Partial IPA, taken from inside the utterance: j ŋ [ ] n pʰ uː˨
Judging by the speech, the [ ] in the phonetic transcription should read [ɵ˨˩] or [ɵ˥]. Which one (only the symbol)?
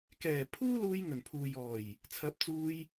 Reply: ɵ˨˩